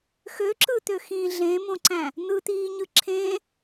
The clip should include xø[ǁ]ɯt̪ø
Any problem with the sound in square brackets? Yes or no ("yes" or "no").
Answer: no